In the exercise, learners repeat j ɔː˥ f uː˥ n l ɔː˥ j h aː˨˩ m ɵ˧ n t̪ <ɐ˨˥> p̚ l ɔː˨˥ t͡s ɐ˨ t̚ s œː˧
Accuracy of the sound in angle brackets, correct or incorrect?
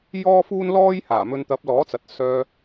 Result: correct